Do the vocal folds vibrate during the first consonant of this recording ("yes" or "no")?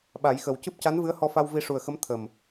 yes